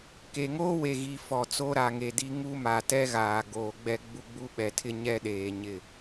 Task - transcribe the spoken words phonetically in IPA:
k e˨ ŋ oː˦ w e˨ ɣ i˨ f ɔ˨ t͡s o˦ ɾ a˨ ŋ e˨ d i˦ ŋ u˦ m a˨ t ɛ˦ ɣ aː˨ ɡ oː˨ ɡ͡b ɛ˦ ɡ͡b u˦ ɡ͡b u˦ ɓ ɛ˨ tʰ ɪ˦ ɲ ɛ˦ ɗ eː˨ ɲ ɪ˦˨

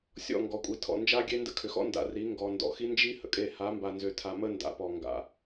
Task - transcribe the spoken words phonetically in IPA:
sʲ ɔ̰˦˨ ŋ ɡ ɔ˨ kʷʼ i˨ tʰ ɔ̰˨ n d͡ʒ a˦ ɡʲ e˦ n d ə̰˦ kʰ ʏ˨ x ɔ̰˦ n d a̰˨ r i˨˦ ŋ ɡ ɔ˨ n d ɔ̰˨ x i˦ n d͡ʒ i˦ h ə̰˨ kʼ e˦˨ h a˨˦ m b a˨ n z ʏ˨ tʰ a˨ m ə˦ n d a̰˨ p ɔ˨ ŋ ɡ a̰˨

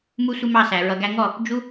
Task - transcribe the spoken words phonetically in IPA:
m u˦ sʷ ɪ˦ m ɑ˦˨ s æ˨ ɹ ʌ˨ ɡ æ˧ ŋ ɔ˦˨ | d͡ʒ u˦

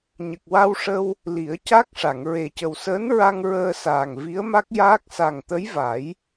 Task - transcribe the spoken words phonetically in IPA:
ɲ ə˨˩ k̚ w a˧ w ʂ ə˧ w | l i˨˩˦ ə̯ c a˦˥ k̚ ʂ a˨˩˨ ŋ ɹ e˨˩ c ə˨˩ w s əː˧˥ n ɹ a˧ ŋ ɹ əː˧ s aː˨˩ ŋ v i˧˥ ə̯ m a˦˥ k̚ j aː˦˥ k̚ s a˨˩ ŋ t̪ ə˧˥ j v a˨˩˦ j

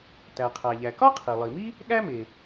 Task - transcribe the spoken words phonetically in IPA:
t æ˩ qʰ æ˩ ʎ æ˩ k ɒ˥ qʰ i˩ lˠ i˩ m i˥ | ɠ æ˥ m e˩

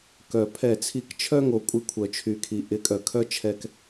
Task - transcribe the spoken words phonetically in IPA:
k œ˨ pʰ ɛ˦˨ t͡sʰ i˦ k t͡ʃʰ œ˦ ŋ o˨ kʷʼ ɪ˦ kʷʰ œ˨ t͡ʃʰ y˨ kʰ i˨ ʔ ɪ˨˦ kʼ œ˨ kʰ œ˦ t͡ʃʰ ɛ˦ k

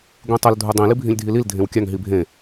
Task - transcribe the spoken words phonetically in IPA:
ɡʷ ĩ tˤ ɘ l dʱ u dˤ ĩ l i bʱ ĩ lʲ dʱ i l i l dʱ ẽ w kʲ a ŋ ɦ i bʱ ẽ

